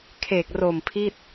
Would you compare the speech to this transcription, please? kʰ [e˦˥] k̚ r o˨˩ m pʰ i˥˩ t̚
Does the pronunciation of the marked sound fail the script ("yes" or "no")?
yes